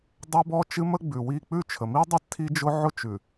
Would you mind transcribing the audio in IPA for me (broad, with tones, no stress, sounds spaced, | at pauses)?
dˤ ɛ˦ b ɔ˦ t͡ʃ ɨ˦ m ə˦ ɡ͡b ʉ˨ w i˦˨ k͡p ʉ˦˨ t͡ʃʰ ə˨ m i˦ dˤ ɛ˦ tʰ i˦ d͡ʒ ʊ˦ ʕ ʊ˦ t͡ʃ ʉ˨